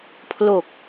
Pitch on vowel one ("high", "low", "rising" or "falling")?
low